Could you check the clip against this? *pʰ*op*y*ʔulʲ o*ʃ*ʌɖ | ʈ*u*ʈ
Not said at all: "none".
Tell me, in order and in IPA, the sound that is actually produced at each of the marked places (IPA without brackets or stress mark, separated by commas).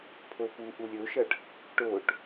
pʰ, u, ʃ, o